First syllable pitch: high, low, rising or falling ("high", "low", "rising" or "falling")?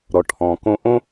low